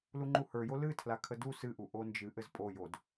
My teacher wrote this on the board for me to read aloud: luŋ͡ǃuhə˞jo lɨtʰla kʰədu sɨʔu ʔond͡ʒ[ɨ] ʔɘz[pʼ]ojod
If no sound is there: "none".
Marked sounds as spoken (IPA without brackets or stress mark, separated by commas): ɨ, pʼ